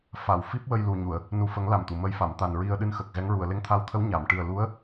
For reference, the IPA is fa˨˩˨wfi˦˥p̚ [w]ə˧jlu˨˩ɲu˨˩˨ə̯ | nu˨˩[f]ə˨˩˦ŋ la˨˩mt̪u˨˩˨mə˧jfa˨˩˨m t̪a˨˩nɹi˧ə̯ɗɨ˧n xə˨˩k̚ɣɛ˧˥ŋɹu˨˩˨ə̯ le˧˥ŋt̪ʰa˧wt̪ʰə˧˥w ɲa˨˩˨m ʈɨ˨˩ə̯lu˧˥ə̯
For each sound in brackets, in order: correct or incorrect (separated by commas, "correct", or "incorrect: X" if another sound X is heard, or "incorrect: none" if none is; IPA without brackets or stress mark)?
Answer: correct, correct